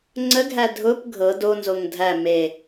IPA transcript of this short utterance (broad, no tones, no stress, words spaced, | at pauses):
ŋ͡ǀəɡʱæ dʱʊp ɡʱɤ donzoŋ dʱæ me